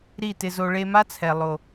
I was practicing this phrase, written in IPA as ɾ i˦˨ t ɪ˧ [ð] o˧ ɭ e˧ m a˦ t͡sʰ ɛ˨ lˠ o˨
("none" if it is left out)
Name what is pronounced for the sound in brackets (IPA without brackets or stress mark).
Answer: z